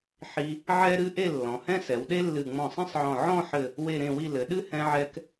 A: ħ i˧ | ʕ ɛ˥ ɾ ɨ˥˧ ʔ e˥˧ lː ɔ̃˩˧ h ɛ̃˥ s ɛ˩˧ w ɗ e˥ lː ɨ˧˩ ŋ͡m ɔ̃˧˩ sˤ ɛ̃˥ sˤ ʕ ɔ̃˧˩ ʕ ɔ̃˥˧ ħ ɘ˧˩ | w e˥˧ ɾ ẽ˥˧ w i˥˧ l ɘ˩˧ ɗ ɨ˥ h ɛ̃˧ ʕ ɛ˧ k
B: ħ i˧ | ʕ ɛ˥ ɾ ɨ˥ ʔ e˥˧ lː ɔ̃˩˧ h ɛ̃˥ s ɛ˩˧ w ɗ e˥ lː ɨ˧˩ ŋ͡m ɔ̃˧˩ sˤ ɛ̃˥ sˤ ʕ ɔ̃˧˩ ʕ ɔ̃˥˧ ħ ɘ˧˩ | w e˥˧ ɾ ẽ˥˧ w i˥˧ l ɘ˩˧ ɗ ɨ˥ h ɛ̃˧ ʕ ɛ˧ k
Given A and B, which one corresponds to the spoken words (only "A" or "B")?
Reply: B